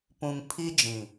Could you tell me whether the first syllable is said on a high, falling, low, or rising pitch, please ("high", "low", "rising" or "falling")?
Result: low